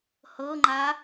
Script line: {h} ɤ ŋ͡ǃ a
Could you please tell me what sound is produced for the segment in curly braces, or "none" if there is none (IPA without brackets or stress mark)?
h